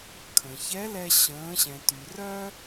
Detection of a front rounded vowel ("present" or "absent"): present